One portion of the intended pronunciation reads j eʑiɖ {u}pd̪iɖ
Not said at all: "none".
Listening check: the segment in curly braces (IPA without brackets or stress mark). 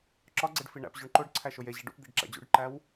ṵ